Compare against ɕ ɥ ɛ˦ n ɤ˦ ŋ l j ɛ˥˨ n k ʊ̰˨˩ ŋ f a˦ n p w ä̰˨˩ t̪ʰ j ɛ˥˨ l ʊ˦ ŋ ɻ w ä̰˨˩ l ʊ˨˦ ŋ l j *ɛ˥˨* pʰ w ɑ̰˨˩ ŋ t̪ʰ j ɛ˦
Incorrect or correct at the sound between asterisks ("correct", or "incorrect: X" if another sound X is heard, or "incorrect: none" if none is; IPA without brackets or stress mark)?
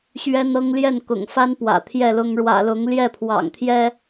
correct